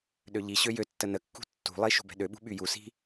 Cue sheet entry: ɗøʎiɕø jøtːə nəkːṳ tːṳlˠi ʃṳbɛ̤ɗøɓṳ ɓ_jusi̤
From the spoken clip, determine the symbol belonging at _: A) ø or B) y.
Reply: B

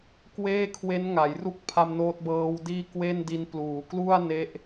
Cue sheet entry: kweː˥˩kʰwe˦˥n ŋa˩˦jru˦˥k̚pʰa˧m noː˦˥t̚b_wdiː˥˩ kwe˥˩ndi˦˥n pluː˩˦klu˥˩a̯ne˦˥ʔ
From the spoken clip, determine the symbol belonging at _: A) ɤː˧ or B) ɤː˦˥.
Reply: B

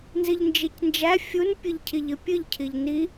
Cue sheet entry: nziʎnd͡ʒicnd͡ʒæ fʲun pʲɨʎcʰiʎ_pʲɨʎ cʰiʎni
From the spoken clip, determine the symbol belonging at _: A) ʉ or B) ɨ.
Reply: B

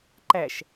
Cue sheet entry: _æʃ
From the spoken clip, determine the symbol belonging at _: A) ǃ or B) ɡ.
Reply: A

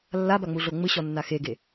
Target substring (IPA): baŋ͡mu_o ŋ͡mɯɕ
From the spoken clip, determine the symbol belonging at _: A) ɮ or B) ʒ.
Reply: A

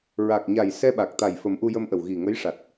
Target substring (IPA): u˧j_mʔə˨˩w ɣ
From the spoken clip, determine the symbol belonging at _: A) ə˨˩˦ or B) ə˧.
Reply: B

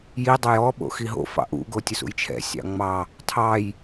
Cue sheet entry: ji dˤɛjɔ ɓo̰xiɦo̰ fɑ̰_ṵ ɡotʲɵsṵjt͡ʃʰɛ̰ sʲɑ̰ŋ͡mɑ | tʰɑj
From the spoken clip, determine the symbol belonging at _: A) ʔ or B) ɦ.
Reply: A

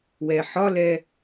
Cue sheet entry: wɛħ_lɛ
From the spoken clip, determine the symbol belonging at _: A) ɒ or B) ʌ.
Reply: A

